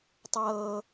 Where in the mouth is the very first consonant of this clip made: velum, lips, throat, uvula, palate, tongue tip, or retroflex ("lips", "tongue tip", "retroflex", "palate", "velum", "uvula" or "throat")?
tongue tip